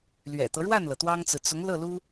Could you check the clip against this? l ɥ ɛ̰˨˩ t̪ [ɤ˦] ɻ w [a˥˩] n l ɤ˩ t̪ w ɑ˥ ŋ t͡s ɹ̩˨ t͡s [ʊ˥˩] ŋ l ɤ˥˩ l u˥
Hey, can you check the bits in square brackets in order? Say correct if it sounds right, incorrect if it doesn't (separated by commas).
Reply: correct, correct, incorrect